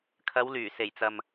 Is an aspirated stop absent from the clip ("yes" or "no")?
no